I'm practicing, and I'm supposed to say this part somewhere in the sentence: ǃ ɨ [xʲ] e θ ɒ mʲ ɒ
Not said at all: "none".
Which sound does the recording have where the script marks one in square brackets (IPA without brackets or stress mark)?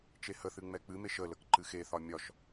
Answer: x